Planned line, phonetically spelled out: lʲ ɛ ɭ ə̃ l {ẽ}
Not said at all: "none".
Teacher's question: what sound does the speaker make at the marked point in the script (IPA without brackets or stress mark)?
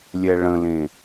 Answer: ẽ